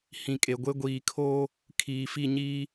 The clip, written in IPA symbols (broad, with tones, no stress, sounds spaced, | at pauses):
h ĩ˨ kʼ e˨ ɡʷ e˦ ɡʷ iː˨ kʰ oː˦ | kʰ iː˨ f i˦˨ ɲ iː˦